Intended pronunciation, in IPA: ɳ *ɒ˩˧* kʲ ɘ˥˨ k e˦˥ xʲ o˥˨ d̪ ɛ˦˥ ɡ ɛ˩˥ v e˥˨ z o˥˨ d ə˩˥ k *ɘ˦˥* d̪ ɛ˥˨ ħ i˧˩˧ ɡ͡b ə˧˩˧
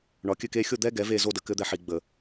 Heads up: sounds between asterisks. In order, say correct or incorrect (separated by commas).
incorrect, correct